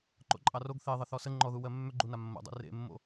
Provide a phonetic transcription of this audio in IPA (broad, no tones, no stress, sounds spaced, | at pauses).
ǃ o̰ ǃʼ ɑ r o ɡ θ e ðˤ ə θ ɔ s ə ŋ͡ǃ ɔ ð u w ɜ mː ʏ ɡ͡ǃ u n a mː o̰ dˤ ḛ r ḛ mː o̰